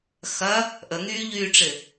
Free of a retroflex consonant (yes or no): no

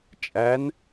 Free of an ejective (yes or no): no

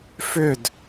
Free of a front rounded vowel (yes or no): no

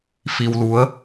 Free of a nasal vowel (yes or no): yes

